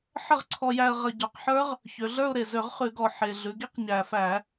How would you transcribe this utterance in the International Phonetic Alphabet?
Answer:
ħə˥˨ʁǀʰɔ˧jæ˧ə̯ʁə˧˩˧ ɟɔ˩˧qħə˞˦˥ʁ | çø˩˧ɮə˞˥˨ʊ̯ɾe˨˩ zø˧˩˧ʁχʉ˧˩˧ɡɔ˨˩ ħe˨˩ ɮʉ˩˧ɡi˦˥q ɲæ˨˩fæ˧˩˧

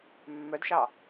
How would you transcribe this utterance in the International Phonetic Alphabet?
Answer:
mːœdʃɑ

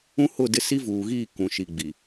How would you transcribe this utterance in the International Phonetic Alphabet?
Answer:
ũ˦hʊ˦˨ dɪ˦˨si˦vuː˨ɣiː˦˨ kũ˨ʃi˨ ɡ͡bi˨

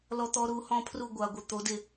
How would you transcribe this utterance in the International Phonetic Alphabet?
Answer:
lɔ˦˥t̪ɔ˦˥ ɾu˨˥hɔ̃˦˥ pʰru˦˨ɡʷa˨ɡʷɪ˨ t̪o˨˥dɪ˦˨

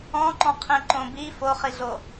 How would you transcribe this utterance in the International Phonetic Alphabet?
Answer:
ɔ̃ǃɔ̃ qʰĩǃõbi foχiɮo

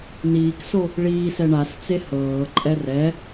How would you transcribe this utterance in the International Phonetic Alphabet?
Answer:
niːkso | ɭiːsɛ ɳast͡se hɤːǃʼɛ rɛ

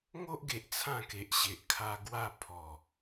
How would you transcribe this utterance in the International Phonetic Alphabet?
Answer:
ŋo˦ʔɡe˨ʔ t͡sʰã˥˧ke˨ʔ ɕe˨ʔkʰa˧ɡwa˥˧ pʰɔ˨˩

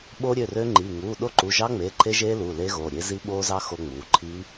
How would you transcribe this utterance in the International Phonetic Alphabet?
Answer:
ɓo˦˥ɾʲø˩˧˩rø˦˥ŋ͡ǃi˩˧˩ ŋuː˩˧˩ ɗo˦˥ǃu˩˧˩ʒɑ˦˥ŋ͡meː˩˧˩ ǃʰe˦˥ʒeː˦˥ luː˩˧˩leː˦˥ɣoː˩˧˩ ɾʲe˦˥ zi˦˥ɓoː˦˥zɑ˦˥ xo˦˥ŋ͡muː˩˧˩ ǃʰi˦˥

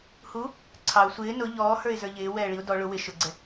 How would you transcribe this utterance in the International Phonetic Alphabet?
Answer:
hu | ǀʰɑʊ̯ sʷɪː nʊ ʎɔːhə˞ɪ̯ zə˞ʎɪː wɛːɭiʊ̯ dɔ ɭʊ wɪ ʃʊɡ͡ǀɛ

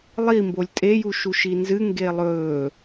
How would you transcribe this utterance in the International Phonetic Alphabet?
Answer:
lˠi mbolʲtʼeju ʃuʃinzɨ ŋɡelˠɵː

